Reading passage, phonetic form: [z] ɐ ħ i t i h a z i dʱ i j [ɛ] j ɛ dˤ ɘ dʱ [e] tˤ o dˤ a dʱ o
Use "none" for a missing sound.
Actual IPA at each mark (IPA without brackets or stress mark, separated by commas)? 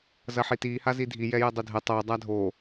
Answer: z, ɛ, ɛ